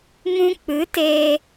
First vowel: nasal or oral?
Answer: nasal